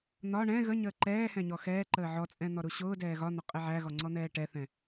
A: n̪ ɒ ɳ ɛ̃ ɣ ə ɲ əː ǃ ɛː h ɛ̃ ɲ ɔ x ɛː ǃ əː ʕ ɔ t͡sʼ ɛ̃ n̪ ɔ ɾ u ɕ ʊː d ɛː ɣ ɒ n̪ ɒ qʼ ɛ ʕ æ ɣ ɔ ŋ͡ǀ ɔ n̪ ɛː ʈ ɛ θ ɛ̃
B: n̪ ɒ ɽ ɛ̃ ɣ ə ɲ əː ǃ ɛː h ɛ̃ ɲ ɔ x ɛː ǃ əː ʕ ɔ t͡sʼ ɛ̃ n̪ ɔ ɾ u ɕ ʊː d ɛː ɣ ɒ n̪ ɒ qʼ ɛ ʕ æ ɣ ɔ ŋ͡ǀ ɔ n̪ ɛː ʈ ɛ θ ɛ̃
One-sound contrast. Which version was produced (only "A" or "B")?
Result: A